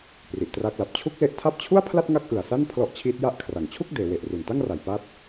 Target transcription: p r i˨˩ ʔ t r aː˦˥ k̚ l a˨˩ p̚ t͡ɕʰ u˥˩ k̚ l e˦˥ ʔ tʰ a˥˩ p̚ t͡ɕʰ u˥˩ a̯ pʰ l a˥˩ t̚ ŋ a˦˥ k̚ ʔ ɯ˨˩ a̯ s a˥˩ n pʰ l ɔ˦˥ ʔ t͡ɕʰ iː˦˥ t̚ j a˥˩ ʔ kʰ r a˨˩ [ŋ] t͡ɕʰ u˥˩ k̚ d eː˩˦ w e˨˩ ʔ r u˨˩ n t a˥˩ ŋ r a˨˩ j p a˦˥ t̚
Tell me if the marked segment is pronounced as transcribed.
yes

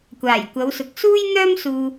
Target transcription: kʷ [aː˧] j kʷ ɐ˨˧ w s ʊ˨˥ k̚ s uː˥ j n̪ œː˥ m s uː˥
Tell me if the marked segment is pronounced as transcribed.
no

